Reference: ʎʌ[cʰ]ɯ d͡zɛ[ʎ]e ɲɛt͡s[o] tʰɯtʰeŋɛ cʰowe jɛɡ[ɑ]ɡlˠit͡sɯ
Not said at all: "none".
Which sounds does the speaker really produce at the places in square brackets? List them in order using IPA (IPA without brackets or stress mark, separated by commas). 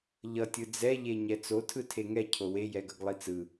tʲ, ʎ, o, ʌ